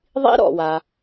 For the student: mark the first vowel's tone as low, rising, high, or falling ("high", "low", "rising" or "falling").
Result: high